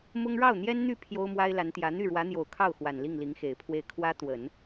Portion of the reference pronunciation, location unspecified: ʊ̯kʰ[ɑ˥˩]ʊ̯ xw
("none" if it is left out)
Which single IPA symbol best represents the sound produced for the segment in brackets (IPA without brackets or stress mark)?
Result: ɑ˥˩